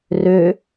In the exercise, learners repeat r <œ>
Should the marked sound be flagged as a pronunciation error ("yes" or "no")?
yes